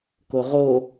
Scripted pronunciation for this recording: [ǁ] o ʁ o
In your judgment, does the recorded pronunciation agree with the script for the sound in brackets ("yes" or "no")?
no